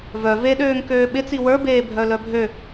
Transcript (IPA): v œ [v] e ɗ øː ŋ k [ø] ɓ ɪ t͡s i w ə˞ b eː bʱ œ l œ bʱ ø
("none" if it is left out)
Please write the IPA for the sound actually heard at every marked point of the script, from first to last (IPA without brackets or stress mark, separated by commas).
v, øː